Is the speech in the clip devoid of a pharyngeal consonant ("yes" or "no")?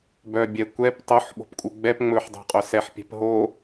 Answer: no